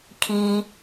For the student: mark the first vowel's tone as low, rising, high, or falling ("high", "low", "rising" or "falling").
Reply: high